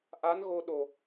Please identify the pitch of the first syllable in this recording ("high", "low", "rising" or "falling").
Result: rising